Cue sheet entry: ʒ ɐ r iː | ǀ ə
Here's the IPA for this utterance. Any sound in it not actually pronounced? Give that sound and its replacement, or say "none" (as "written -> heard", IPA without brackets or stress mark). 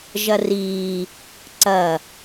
ə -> ɐ